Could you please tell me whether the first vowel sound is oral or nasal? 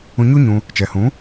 nasal